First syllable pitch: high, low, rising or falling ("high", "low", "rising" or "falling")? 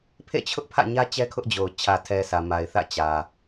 falling